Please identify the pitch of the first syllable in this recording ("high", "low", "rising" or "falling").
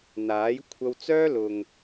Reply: rising